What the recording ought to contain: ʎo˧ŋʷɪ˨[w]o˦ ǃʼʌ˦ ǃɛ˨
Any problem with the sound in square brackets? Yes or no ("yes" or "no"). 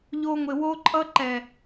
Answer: no